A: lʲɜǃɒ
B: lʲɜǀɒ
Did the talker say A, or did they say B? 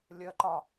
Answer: A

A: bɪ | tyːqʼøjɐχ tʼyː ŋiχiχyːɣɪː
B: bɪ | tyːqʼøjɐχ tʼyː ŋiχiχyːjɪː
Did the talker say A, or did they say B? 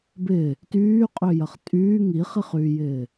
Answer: B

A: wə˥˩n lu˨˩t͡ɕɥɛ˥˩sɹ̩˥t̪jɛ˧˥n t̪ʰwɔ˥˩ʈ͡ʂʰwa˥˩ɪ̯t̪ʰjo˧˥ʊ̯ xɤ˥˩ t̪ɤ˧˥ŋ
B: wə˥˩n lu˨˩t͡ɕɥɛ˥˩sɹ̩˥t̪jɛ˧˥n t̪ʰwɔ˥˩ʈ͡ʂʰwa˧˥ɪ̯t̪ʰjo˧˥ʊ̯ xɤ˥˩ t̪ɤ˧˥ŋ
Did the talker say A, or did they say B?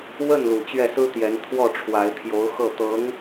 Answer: B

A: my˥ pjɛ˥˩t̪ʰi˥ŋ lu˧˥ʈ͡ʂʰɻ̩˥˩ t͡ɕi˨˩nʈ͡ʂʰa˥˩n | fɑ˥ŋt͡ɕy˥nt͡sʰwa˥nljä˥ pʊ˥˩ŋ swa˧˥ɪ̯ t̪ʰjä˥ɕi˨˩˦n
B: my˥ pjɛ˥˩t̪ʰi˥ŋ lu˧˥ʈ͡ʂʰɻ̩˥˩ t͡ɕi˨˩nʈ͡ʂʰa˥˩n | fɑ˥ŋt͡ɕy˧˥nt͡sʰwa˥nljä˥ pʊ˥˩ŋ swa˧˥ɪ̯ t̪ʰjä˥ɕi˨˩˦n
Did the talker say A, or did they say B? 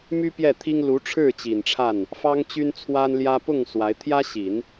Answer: A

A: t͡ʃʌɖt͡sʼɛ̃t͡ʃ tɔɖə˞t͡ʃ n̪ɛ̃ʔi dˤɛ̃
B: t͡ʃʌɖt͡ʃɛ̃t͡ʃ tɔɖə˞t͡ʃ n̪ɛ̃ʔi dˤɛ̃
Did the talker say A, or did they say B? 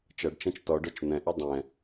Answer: B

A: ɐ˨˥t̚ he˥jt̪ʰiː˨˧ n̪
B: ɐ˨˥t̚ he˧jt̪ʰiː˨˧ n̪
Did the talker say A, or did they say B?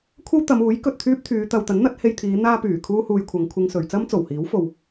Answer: B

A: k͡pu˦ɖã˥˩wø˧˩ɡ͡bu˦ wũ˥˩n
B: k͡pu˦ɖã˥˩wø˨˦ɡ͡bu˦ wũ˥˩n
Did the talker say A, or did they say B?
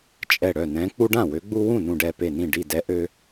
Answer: B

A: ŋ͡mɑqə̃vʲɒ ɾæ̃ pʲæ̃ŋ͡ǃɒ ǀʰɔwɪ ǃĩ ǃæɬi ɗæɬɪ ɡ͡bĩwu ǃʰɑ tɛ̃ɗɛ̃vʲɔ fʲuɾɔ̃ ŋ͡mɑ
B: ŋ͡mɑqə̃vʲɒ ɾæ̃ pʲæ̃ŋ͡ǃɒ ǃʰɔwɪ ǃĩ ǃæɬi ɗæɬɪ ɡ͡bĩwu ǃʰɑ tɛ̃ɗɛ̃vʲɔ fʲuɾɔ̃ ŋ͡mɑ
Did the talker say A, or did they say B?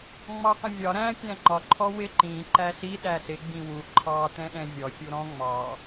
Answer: B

